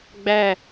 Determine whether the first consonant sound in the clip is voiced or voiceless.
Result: voiced